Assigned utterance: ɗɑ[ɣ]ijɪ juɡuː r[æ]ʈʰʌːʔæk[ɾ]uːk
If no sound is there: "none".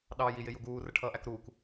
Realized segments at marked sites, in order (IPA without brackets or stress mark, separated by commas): j, ə, ɾ